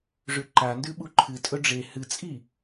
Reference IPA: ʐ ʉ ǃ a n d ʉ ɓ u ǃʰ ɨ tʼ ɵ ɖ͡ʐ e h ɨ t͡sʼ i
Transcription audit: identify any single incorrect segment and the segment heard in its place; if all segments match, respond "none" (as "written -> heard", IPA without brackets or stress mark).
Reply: none